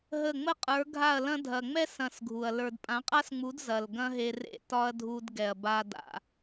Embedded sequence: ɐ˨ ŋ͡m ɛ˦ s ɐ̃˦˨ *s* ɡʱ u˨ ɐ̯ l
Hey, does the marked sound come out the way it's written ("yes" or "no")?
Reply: yes